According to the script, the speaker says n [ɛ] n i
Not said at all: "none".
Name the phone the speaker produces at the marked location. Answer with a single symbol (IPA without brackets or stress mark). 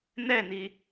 ɛ